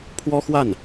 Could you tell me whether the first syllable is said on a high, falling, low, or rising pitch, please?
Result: high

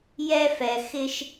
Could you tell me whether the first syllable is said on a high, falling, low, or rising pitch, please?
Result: high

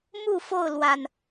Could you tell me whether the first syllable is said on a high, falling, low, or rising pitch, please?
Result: falling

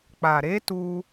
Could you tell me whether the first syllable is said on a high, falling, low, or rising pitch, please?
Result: low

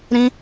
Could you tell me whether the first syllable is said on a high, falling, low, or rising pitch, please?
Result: high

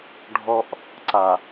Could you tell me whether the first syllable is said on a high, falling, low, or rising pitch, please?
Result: high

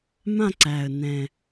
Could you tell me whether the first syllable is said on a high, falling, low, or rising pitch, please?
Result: falling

